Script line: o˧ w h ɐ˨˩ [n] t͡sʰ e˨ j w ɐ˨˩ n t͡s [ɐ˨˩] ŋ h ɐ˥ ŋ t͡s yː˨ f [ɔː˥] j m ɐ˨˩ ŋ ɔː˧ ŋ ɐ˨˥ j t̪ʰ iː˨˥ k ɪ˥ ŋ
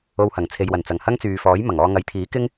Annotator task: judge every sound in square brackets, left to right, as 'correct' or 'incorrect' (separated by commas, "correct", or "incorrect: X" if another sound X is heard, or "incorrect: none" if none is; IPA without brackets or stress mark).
incorrect: ŋ, correct, incorrect: ɔː˨˥